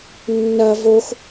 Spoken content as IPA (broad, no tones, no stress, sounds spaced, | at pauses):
nː ɐ v o x